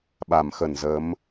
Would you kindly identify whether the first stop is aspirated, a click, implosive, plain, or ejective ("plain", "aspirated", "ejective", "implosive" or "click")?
implosive